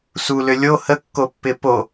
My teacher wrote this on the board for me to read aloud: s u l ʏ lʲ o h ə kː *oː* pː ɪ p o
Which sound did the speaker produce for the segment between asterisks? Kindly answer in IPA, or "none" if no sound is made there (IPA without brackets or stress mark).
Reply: o